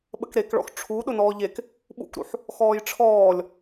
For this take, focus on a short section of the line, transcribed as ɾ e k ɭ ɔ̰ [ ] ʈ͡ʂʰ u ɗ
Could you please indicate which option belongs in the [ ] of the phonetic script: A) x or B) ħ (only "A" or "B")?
A